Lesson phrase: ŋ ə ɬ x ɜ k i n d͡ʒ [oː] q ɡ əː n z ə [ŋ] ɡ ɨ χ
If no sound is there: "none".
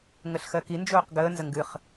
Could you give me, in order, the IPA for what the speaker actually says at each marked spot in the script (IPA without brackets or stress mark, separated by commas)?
oː, ŋ